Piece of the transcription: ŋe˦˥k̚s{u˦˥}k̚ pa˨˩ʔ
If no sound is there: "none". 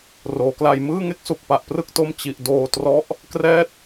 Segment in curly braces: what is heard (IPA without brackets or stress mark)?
u˨˩